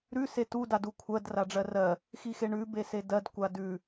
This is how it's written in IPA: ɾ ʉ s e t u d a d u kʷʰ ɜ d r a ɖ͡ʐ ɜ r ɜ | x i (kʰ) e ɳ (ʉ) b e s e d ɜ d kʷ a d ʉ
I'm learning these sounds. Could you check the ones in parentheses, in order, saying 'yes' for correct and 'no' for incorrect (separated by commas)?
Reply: no, yes